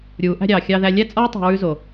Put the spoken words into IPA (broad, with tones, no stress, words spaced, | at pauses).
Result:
ɾʲuː˨˦ʔæ̤˦ɾʲɑː˨ xʲɑ˧ðæ˧ lʲæ˦t͡sʼɔː˦ tˤɑ̤˧ɹʉ˦zo˨